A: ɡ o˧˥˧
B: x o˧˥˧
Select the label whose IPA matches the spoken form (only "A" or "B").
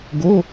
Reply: A